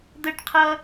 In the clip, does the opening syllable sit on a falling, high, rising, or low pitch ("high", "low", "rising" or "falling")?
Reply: high